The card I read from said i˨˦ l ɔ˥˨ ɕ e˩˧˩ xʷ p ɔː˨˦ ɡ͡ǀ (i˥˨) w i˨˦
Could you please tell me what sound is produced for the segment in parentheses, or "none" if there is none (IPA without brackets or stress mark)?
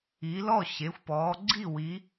i˥˨